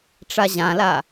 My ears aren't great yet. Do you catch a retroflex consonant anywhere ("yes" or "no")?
yes